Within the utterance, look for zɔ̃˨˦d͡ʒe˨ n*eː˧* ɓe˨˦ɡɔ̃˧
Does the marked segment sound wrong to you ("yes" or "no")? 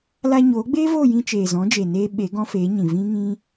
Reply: yes